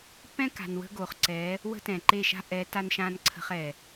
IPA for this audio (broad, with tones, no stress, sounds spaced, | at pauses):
p ɛ̃˦ k a̤˨ n w ə̤˧ ɡ o˨ χ ǀ ɛ˨˦ | w ə̤˦ t ɛ̃˨ ǃ e˦˨ ʃ a̤˦ ʔ ɛ˨˦ t a˧ n ʃ ã˧ n ǀʰ ə̤˧ χ ɛ˨